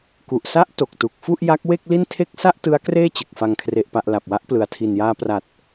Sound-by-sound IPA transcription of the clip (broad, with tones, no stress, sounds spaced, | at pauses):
k u˨˩ ʔ s a˦˥ ʔ t o˨˩ k̚ t u˨˩ k̚ f u˥˩ ʔ j a˦˥ k̚ w e˥˩ k̚ l i˥˩ n tʰ e˥˩ k̚ s a˥˩ ʔ t ɯ˦˥ a̯ k r eː˥˩ t͡ɕ ɯ˨˩ k̚ f a˨˩ ŋ kʰ r e˨˩ ʔ p a˨˩ ʔ l a˨˩ p̚ w a˦˥ ʔ p l ɯ˨˩ a̯ tʰ i˨˩ n j aː˧ p r a˨˩ t̚